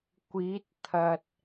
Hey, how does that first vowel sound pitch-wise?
rising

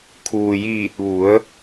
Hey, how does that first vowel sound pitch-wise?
low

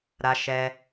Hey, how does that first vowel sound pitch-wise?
high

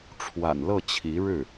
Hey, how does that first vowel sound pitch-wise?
low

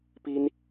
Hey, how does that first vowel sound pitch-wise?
high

